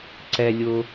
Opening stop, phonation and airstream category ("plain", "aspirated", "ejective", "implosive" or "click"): click